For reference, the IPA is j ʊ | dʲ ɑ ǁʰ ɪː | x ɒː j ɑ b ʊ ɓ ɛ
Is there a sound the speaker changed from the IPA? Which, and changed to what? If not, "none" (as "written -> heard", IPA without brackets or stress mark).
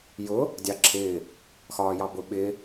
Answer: ɛ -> ɪ